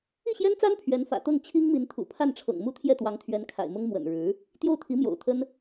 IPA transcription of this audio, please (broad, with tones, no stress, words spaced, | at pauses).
i˥˩ɕjɛ˥nt͡sa˥n pʰɥɛ˧˥nfä̰˨˩t̪ɤ˥˩ŋ t͡ɕʰi˥ŋmi˧˥nt̪ʰṵ˨˩ pʰa˥˩nʈ͡ʂʰɤ̰˨˩ŋmu˥˧ t̪ʰjɛ˥˩t̪wɑ˧˥ŋt̪ʰɥɛ˧˥n kʰa̰˨˩ɪ̯mʊ˥ŋ mwə̰˨˩nɻɻ̩˧˥ | t̪jo˥˩ʊ̯t̪ʰi˧˥mjo̰˨˩ʊ̯t̪ʰə˥n